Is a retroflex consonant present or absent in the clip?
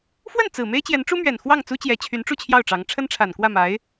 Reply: present